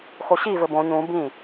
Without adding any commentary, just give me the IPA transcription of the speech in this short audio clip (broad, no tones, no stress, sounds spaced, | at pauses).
x o ɕ i v ɘ b õ ɲ ũ b ĩ